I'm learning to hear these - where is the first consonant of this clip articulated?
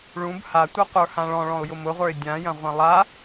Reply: retroflex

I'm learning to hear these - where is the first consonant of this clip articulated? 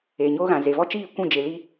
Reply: palate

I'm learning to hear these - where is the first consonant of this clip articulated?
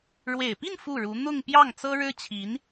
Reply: retroflex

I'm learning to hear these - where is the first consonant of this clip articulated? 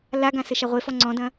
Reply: tongue tip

